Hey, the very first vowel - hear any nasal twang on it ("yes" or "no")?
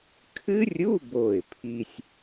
no